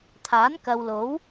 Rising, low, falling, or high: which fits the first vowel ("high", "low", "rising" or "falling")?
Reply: rising